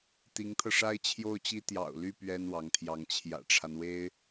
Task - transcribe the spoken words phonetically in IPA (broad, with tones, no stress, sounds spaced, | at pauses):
t̪ i˧˥ ŋ t̪ʰ ɤ˧ ʂ a˥ ɪ̯ t͡ɕʰ j o˥˩ ʊ̯ t͡ɕ i˥ t̪ j ɑ̰˨˩ ʊ̯ l y˥˩ p ɥ ɛ˥ n w ɑ˧˥ ŋ t̪ʰ j ɑ˧˥ ŋ t͡ɕʰ j ä̰˨˩ ʈ͡ʂʰ a˦ n w e˥ ɪ̯